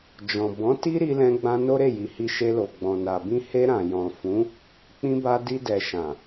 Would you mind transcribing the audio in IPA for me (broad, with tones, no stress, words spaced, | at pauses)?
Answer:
d͡ʒɔ̃˨ bɔ̃˨˦ti˦ ɾi˧lɛ̃˧ɡ͡bã˧ no˦ɾe˦˨ji˨hi˧ ʃe˧lo˨ɡ͡bɔ̃˨ na˨bĩ˧ he˧ ɾã˨jɔ̃˨ fũ˨˦ | k͡pĩ˧ba˧ di˧dɛ˨ ʃã˨